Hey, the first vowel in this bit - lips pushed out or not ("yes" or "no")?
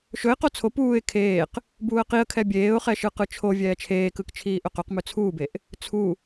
yes